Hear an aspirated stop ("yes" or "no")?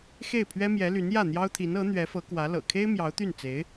yes